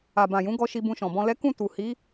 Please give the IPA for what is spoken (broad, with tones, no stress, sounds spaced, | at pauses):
a˨ b ã˨ j ũ˨˦ ɡ ɔ˧ ʃ i˧ b ũ˧ ʃ ɔ̃˨ b ɔ̃˧ l ɛ˦ k ũ˦˨ t u˨ h i˨˦